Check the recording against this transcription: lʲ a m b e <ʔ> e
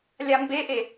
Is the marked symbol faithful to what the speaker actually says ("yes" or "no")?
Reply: yes